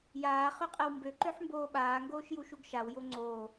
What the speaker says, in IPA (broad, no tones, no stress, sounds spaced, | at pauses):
j aː χ ø qʼ ɛ w m b ø ǃ ø ħ m b oː ɓ aː ŋ ɡ oː ʃ j u ʃ u ɡ ʃ a w j o ŋ͡ǀ oː